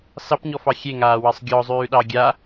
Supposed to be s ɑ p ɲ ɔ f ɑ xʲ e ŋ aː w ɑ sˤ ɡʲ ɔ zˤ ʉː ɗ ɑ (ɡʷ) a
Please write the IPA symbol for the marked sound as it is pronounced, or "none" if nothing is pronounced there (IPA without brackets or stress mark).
ɡʲ